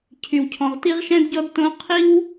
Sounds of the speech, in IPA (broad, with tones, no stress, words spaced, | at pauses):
cʰy˨wcʰɔ̃˨ʁ ti˦ʁʃɛ̃˦dɟɔ˦d tõ˦ qʰi˦w